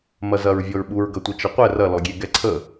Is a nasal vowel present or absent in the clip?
absent